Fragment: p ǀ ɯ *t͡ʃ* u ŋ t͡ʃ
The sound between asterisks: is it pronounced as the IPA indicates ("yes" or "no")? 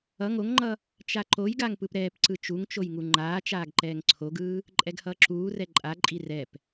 yes